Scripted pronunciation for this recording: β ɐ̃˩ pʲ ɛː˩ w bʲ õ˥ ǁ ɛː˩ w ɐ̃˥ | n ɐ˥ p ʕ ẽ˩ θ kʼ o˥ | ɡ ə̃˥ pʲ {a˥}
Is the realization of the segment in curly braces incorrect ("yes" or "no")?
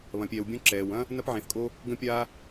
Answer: no